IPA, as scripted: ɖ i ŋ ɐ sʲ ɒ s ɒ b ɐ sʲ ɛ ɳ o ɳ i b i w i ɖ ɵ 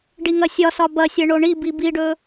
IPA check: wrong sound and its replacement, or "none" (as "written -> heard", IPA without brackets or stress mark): w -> b